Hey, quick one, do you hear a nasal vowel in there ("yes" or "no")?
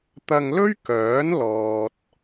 no